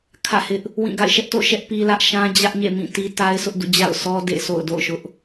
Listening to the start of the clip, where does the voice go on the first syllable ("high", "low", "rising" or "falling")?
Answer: falling